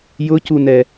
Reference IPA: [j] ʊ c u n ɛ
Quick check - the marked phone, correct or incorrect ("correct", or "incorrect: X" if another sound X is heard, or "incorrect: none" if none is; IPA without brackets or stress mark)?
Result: correct